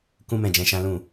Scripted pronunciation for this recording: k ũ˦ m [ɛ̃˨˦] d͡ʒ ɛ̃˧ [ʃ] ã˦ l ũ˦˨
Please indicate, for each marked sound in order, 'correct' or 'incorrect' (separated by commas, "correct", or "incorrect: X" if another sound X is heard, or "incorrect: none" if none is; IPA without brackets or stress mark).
incorrect: ɛ̃˦˨, correct